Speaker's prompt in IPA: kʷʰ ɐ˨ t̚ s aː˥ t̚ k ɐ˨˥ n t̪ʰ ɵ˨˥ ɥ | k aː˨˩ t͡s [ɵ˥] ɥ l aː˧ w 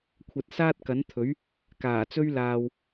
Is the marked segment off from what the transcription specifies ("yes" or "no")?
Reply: no